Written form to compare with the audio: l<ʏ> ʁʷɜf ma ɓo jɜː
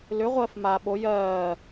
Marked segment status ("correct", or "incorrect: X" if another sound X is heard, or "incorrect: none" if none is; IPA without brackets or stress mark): correct